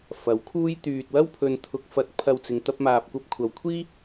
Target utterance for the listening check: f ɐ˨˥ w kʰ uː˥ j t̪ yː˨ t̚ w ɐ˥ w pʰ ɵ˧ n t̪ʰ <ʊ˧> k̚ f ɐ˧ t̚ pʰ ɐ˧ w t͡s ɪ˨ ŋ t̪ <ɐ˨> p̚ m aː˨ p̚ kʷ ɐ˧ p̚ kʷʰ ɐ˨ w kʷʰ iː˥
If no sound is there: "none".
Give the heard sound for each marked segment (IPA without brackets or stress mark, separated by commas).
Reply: ʊ˧, ɐ˧